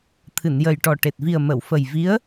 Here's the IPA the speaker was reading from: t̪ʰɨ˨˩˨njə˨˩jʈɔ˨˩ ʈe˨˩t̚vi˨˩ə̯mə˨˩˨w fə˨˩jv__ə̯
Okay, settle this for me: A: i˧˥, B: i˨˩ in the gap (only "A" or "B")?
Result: A